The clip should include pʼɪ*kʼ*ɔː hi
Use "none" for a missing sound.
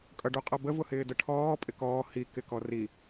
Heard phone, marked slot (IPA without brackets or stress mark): k